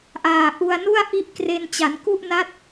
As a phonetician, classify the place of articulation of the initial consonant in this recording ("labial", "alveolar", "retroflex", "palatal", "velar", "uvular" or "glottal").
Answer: glottal